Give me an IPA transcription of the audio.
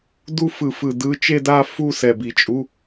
d u˥˧ f ɯ˧˩˧ f ɯ˧˩ d ɯ˧˥˧ t͡ʃ e˥˧ d a˥˧ f u˥˧ s ɛ˧˩ b i˧˩ t͡ʃʼ u˧˥˧

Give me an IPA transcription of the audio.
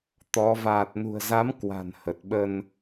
t̪ ɔ˨˦ v aː˨˩ t̚ n ṳ˨˩ ə̯ z a˨˦ m k w a̤˨˩ n h ə˨˩ t̚ ɓ ə˧ n

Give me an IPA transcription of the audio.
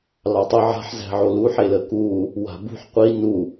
l ɑ tˤ ʊ ʕ a̤ ħ z æ̤ ʕ o l u ħ e l ə k u | w a̤ b ṳ ħ qʷ i n u

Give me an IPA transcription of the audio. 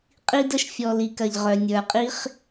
qʼ i˧ d ə˧ ʃ fʲ ɔ˨ l i˨ k ɐ˨ ʎ ʁ œ˨ nʲ ə˞˨ qʼ i˦ χ

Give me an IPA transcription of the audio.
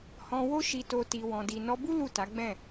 h ɔ̃˧ w o˦ ʃ i˧ t o˧ t i˨ w ɔ̃˨ d i˨ n ɔ˧ b u˦ l u˦˨ t a˨˦ ɡ͡b ɛ̃˦˨

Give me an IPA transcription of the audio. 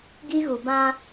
ɡ i˦ ɣ u˨ b ã˦

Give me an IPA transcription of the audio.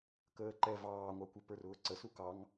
k əː ǃ ɛ v ɑː ŋʷ ɑ kʷ ɪ p ə˞ r ʊː ǀ ə s u k ɑ ŋ

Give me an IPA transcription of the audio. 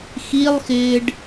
x i lˠ x ɪː ɖ

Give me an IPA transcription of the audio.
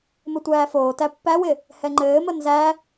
m ɘ tʷ æː f oː t æ pː æ w ɪ | h ɛ ŋ͡ǃ ɘː m ə n z æ

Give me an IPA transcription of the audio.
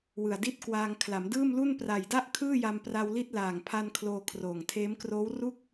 w ɯ˨˩ a̯ d i˥˩ t̚ k w aː˧ ŋ kʰ l a˩˦ m d ɯː˥˩ m l u˥˩ n p r a˨˩ j d a˥˩ ʔ kʰ ɯː˥˩ j a˧ m p r a˧ w l i˥˩ t̚ l aː˨˩ ŋ pʰ a˧ n kʰ l oː˧ kʰ r oː˨˩ ŋ tʰ eː˦˥ m k r oː˦˥ w r u˥˩ k̚

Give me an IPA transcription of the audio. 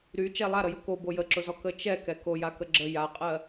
ɾ y t͡ʃ ɛ lˠ a ɾ ə j ʊ k o b o j ə ǁ ʊ z ɔ k ə t͡ʃ ɛ k ɛ k o j a k ə ɡ͡ǁ ə j a qʼ ɜ

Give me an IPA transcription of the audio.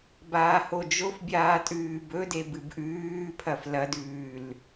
b aː h o d͡ʒ o f bʲ aː tʼ ʉː b ɵ d e b ɨ b ʔ ʉː pʰ ɐ f l ɐ d ʉː l

